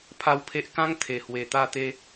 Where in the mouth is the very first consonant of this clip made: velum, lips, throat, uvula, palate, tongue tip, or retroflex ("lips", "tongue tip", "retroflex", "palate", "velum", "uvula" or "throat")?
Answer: lips